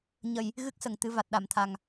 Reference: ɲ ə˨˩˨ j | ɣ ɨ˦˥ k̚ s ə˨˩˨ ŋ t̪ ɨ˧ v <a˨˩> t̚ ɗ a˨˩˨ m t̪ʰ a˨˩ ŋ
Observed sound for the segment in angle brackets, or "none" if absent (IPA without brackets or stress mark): a˨˩